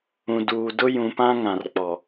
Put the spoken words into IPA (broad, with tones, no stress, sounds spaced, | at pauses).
ũ˨ d uː˨ d ʊ˦ j ũ˨ p ã˦ ŋ ã˨ r k͡p ɔ˨